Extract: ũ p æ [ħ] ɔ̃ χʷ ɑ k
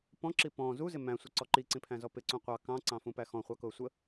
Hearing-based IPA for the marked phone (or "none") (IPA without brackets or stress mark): x